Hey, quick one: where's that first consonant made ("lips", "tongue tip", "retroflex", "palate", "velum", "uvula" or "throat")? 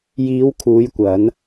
palate